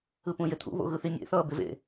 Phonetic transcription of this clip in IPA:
ɯpũjet̪ʰṵ βo̰ɣɯθimʲḛ θʌːbevḛ

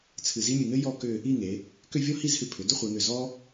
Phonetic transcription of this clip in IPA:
t͡sʰɨ˧˩zi˥mʲɨ˧˩ ŋɘ˥ jɔ˥˧ kʏ˥˧ | i˥˧ŋe˩˧ | kʏ˥˧vʲɔ˥hi˥˧zhɨ˧ pʰʏ˩˧dʏ˥χʷi˩˧ŋʏ˧˩ zɔ˥

